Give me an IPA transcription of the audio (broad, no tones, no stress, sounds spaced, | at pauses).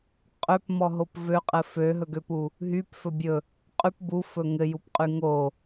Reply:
qʼ ø p m ɔ ɦ o p v ø qʼ ɘ f ø ɦ ɵ ɡ ø p u | ɦ y p f ɵ bʲ ɵ | qʼ y p b u f ɵ ŋ ɘ j u p qʼ y ŋ o